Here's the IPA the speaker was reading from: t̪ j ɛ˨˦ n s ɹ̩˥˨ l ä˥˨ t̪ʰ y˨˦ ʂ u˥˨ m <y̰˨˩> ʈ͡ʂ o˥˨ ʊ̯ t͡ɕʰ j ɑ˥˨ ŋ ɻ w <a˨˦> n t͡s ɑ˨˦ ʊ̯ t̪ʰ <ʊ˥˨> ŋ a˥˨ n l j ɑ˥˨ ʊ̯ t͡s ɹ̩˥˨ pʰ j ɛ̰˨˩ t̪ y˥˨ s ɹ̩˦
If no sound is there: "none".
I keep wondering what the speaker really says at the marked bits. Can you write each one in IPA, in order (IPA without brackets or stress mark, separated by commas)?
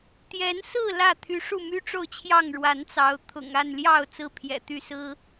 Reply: y˦, a˨˦, ʊ̰˨˩